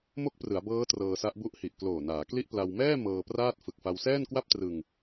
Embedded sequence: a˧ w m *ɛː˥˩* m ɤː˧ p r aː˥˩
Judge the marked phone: correct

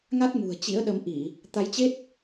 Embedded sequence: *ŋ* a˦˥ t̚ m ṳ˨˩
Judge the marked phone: correct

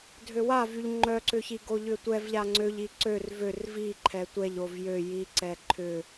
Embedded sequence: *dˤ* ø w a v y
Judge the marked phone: incorrect: dʱ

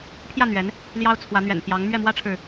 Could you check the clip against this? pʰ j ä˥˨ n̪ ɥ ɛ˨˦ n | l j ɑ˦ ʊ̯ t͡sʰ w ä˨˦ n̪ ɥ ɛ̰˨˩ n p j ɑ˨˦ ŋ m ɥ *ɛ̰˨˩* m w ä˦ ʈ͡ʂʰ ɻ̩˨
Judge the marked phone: incorrect: ɛ˥˨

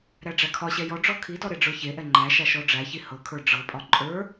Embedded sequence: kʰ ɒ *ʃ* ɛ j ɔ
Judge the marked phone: incorrect: ɕ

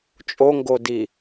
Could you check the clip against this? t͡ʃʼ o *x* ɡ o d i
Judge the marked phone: incorrect: ŋ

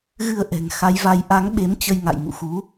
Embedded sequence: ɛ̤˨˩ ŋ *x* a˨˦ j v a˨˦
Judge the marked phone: correct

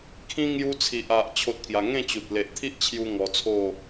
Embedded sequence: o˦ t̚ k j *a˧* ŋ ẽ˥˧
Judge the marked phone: correct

